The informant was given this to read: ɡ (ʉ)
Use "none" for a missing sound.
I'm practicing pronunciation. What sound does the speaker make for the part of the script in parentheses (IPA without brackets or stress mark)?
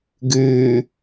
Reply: ʉ